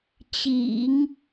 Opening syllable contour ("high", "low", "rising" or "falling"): low